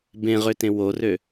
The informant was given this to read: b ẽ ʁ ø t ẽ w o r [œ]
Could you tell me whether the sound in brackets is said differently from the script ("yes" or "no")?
yes